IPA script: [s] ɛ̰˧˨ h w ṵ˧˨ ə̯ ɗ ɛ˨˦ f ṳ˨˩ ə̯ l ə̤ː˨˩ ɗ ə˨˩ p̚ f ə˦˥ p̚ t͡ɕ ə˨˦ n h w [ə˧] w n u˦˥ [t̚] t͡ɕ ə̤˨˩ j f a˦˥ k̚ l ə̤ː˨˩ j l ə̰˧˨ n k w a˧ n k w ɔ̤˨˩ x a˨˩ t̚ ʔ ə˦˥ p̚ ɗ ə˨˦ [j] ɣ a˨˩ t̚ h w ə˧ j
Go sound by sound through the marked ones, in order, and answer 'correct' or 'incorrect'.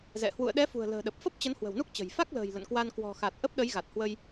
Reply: incorrect: z, incorrect: ə̤˨˩, incorrect: k̚, correct

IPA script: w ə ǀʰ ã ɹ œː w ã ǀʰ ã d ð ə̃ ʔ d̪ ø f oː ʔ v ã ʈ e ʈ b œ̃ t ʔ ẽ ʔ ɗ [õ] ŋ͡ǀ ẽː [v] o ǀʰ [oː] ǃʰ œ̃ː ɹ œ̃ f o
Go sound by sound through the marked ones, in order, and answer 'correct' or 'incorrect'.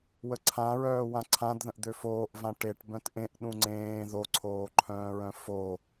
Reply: incorrect: ũ, incorrect: ð, correct

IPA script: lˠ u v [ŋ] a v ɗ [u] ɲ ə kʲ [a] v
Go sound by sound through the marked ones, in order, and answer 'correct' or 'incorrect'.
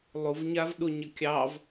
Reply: incorrect: ɲ, correct, incorrect: ɑ

